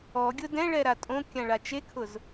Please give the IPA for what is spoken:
ɔɡʲʊ dɛ̃ɭɛɾa tʼõkʲãɭa t͡ʃekʰʊz

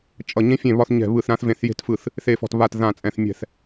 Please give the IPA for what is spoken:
t͡ʃʼʌ˥˩ ɲẽ˥fʲẽ˥˩ βɒ˥θɲɛ̤˥˩ βɯ˥˩θɾã˥θvẽ˥˩θ je̤˥tfɯ˥˩θ | θe˥˩fɔ̤˥˩tβa˥˩t ðã˥˩t͡sʼɛ̃˥˩θ mʲɛ̤˥˩θ

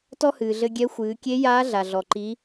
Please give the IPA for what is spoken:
tɔ˥hɨː˩ɮɘ˧ɡʲɛ˧˥ xʷɨː˩˧kʲe˧˥ jaː˧˥ ɮa˩ɮɔ˩ ǃi˩˧

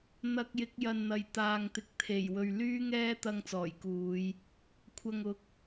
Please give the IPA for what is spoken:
n̪ɐ˧k̚jɪ˨˥k̚jɐ˨nn̪ɐ˨˩j t̪aː˨ŋt̪ɪ˨˥k̚ t̪ʰe˨˩j wɵ˨ɥ lyː˥ŋɛː˥t̪ɐ˧ŋ t͡sɔː˨˩jkuː˨˧j | kʷʰɐ˨ŋʊ˨˥k̚

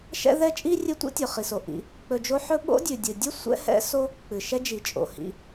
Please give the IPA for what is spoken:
ʃɛ̰˥ðɛ˥ t͡ʃʼi˥ rʲɨ˦tʷḭ˥tʲɵ˩ χi˩so˩ ʔḭ˨ | k͡pɵ˨d͡ʒo˦ħɵ˥ ɓo̰˥dʲʉ˩dʲɨ˩ dʲɨ˥ sʷɛ̰˦hɛ̰˦so˦ | k͡pɨ˩ʃɛ˦d͡ʒi˩ t͡ʃʼo̰˩hḭ˨

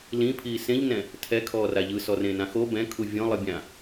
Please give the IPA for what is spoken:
lĩpʰiː sẽʎnɛ̃ | tʰɛkʰɔːra ʎɯsɔrẽnã xo bɛ̃kʰu vʲɔ̃lˠɯbʲã

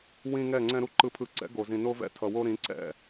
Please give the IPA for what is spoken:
wĩ˨ ŋɛ˦˨ŋ͡ǀɛ̃˦ɾu˦ ǃɯ˨pʰɯ˨ǀɛ̰˨˦ ɡo˨zĩ˨no˦vɛ̰˦ tʰʌ˨wo˦ ɾĩ˨˦ǀɛ̰˦˨

